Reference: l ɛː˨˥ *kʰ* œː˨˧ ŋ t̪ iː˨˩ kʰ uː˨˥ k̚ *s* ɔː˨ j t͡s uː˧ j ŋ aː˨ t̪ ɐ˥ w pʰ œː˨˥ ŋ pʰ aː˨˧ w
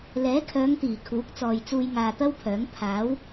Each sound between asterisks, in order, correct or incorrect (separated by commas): correct, incorrect